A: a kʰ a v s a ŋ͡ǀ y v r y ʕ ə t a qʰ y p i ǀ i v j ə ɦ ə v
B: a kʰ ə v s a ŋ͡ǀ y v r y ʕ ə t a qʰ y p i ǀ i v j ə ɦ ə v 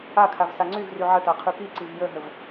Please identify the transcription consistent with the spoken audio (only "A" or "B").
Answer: A